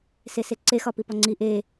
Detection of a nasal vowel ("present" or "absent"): absent